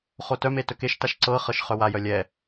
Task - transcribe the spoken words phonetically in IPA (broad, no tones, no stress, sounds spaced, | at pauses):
χ o t œ m e t ɵ k e ʃ t a ʃ ǀ ɤ χ ɤ ʃ χ œ w a j œ lʲ ɛ